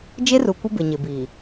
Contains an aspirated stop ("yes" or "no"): no